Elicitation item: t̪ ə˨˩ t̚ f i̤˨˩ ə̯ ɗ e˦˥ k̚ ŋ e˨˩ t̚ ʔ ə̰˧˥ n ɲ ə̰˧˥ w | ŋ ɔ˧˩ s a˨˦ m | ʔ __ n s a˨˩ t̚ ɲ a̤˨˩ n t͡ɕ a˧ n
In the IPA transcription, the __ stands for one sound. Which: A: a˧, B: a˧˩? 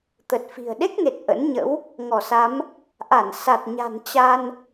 B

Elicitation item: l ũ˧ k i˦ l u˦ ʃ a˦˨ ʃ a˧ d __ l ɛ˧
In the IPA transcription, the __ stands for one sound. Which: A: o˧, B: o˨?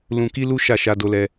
A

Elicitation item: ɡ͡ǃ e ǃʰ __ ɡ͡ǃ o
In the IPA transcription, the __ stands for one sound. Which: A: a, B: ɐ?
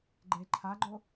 A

